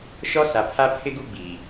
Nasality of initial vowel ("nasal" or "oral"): oral